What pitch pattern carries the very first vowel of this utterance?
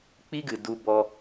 high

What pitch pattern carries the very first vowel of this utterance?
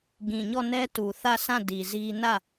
low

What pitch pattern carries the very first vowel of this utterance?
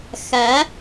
rising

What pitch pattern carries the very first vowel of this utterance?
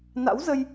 rising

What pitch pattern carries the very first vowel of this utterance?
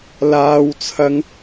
high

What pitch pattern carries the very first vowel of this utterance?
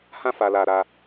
high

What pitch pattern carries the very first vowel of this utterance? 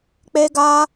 high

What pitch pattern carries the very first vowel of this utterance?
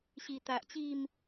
low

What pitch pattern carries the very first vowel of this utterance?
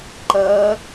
rising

